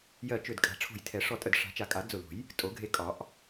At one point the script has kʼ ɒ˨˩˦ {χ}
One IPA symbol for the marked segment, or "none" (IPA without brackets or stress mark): ʔ